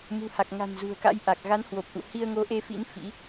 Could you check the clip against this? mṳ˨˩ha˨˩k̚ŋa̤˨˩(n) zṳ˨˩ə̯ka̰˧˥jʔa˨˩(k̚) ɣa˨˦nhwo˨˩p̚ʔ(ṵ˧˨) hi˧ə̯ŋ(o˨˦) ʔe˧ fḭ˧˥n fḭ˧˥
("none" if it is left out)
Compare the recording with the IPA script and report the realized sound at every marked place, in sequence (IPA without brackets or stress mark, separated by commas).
n, k̚, ṵ˧˨, o˨˦